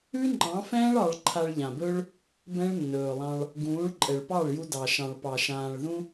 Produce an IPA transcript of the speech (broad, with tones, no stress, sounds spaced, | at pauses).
ʉ˦ ŋ͡ǃ ɑ̃˨˦ f ɛ̃ː˦ ɭ ɑ˧ ɭ ǃʰ a˧ ɭ ʎ ã˨ b ɵ˦ ɭ | b ɛ̃˦ ɭ nː ɵː˨ lˠ ɑ̃˧ ɭ | ɡ ũː˨˦ ɭ ǃʼ ɛ˨ ɭ p ɑ˦˨ ɭ j u˧ d ɑ˨ ʃ ɑ̃˨ ɭ p ɑ˨ ʃ ãː˨ ɭ ð ũ˧